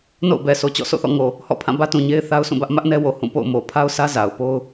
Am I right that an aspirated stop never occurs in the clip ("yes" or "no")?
no